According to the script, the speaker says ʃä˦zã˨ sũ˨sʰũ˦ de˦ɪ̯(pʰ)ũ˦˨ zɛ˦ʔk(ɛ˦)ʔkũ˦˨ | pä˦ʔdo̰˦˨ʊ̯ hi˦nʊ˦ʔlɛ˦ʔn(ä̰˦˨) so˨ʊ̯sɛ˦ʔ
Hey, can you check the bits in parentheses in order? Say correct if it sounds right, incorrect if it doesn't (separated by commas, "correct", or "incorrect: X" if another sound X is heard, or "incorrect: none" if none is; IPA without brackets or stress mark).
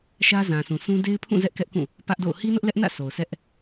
correct, correct, correct